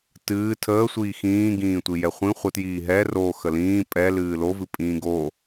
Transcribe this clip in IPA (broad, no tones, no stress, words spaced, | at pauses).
tɨː tʰəː sʷiːxĩːɡĩː tʷijɛχʷĩ χʷətjiː ɦɛ ro xəlĩː pʼɛ lɨːlovɨ pʼĩːɡo